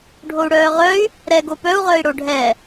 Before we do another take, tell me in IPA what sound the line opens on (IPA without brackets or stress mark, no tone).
ɖʱ